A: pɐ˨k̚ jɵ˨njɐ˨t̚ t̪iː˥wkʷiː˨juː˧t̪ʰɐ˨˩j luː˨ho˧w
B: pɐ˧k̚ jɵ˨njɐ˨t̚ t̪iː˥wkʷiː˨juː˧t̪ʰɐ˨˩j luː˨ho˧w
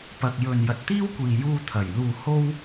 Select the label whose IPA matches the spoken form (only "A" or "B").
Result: A